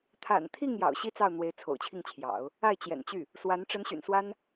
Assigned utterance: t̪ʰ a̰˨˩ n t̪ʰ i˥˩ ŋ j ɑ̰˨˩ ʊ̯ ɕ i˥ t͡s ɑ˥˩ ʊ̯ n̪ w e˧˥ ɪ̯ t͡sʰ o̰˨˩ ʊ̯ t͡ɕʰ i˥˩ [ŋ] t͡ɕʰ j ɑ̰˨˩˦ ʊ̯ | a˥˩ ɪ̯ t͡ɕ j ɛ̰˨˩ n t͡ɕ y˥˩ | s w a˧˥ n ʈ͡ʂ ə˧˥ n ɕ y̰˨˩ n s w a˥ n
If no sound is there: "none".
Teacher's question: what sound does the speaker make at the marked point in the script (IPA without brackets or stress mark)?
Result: ŋ